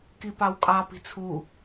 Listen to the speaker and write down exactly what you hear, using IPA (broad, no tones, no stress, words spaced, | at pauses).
kipɑwkʼɑ pi̤t͡sʰu